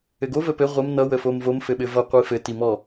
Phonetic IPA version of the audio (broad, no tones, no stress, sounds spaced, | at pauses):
ɘ ɡ o v ə p ɘ ʁʷ ə m n ʌ w ə f o m v o m f ɘ ɓ ɘ v ʌ qʷ i f ɘ t i m ɔ